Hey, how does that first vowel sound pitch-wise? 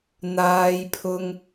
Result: high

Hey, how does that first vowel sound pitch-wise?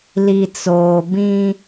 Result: low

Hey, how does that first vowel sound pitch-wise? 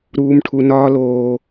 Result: low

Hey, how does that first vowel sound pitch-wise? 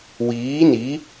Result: rising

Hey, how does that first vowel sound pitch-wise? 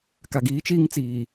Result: low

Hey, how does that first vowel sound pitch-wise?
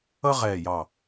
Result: high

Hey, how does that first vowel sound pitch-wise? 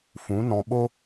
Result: rising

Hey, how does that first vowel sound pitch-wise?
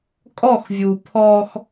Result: falling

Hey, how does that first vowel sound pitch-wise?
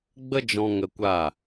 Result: high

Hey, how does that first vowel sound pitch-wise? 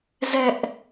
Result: high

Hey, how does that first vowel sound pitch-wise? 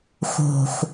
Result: low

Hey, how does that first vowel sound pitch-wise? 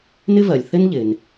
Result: high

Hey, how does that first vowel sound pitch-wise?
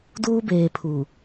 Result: high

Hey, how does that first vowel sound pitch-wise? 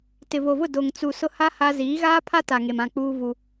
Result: low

